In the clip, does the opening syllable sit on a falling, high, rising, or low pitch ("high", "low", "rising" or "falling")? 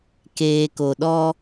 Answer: low